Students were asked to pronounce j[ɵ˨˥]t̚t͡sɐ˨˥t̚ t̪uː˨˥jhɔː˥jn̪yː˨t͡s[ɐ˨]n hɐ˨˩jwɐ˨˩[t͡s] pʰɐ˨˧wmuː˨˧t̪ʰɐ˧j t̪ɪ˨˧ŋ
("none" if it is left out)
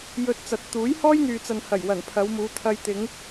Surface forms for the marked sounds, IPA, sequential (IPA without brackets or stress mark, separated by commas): ɵ˧, ɐ˨, n